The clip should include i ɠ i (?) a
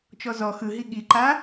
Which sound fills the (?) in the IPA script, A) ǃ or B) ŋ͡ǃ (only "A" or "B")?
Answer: A